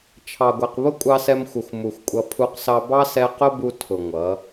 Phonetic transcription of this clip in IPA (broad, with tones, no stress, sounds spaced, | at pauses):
t͡ʃʰ ɑ˨ ɡʷ ɛ˨ q β ʊ˦ kʷʼ ɑ˧ s ɛ˧ m xʷ ʌ˨ xʷ m u˨ xʷ kʷʼ ʌ˧ pʰ u˧ q s ɑ˧ b ɑ˦ s ɛ˧ q ʊ˦ b u˧ tʰ ʊ˨ ŋʷ ʌ˨˦